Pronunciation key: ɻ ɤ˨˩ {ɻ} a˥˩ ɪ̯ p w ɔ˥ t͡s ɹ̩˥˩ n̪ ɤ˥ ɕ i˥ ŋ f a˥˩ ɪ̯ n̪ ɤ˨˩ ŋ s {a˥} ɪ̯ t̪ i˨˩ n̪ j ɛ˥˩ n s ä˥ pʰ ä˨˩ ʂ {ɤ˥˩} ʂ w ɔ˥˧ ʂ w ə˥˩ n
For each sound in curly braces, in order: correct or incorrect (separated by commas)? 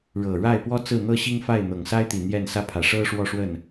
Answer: correct, correct, incorrect